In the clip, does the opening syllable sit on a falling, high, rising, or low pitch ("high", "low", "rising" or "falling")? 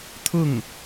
falling